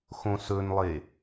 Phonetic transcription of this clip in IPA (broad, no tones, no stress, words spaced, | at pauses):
xõsɵnlˠe